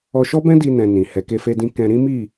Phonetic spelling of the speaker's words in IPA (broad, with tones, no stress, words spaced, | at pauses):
ɔ˧ʃɔ˦bɛ̃˦di˧ nɛ̃˧nĩ˨ hɛ˨ke˧fe˧dĩ˧ kɛ̃˧ɾĩ˦mi˦˨